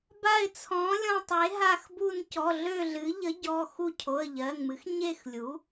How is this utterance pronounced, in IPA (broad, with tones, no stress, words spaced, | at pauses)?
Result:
ba˦˨ɪ̯t͡sʰɔ̃˩˥lʲɔ̃˦˨tˤe˩˥ ɦa˦˨xbu˦˨n cɔ˩˧˩ɮø˦˨ɮɨ˩˥ ʎə˩˥ɟɔ˩˧˩ xu˦˨ cʰo˩˧˩ə̯ʎɜ˩˧˩ŋmɨ˩˥x ɲe˦˨xlʲu˩˥